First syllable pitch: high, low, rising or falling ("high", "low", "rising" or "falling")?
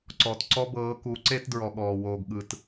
low